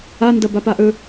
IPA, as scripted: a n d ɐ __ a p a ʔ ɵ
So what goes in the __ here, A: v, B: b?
B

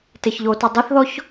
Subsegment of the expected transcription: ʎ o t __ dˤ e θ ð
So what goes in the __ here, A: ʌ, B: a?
A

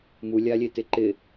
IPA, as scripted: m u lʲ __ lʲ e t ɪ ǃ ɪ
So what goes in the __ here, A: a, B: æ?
A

